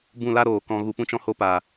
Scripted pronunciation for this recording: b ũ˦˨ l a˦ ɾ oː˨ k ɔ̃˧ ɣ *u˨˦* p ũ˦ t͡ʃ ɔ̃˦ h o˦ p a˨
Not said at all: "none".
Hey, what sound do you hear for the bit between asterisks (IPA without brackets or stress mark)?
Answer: u˧